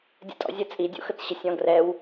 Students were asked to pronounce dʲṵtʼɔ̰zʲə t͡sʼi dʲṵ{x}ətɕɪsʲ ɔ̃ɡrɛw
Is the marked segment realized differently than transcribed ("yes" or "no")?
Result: no